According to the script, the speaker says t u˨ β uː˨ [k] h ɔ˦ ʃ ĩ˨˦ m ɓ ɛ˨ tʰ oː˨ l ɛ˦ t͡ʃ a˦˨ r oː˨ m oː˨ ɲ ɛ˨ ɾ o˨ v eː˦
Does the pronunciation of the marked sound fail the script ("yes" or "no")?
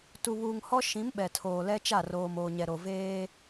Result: yes